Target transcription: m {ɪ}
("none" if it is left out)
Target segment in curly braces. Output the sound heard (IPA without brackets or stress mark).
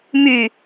y